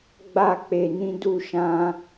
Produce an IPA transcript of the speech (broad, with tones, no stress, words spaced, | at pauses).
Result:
ɡ͡ba˧k͡pe˨ nĩ˧du˧ ʃã˧